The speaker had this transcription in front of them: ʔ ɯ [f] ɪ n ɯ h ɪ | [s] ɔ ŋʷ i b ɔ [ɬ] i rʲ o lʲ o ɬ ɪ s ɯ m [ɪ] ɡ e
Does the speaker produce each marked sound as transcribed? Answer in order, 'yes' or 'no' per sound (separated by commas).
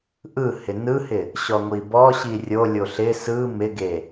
no, no, no, yes